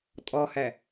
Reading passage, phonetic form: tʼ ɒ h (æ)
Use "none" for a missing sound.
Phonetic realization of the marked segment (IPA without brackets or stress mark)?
æ